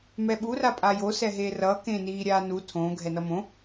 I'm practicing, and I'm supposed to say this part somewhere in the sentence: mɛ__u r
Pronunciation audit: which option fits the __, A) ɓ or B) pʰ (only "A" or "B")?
A